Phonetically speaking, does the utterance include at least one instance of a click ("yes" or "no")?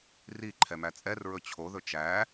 yes